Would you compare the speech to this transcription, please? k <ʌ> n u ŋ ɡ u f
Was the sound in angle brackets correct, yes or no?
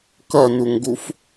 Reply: yes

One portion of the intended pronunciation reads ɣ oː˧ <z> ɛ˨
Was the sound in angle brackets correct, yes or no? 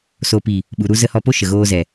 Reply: yes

